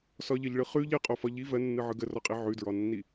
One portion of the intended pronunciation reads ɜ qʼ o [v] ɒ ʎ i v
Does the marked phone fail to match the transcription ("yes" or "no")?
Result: yes